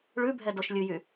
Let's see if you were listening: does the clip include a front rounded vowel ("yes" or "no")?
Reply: yes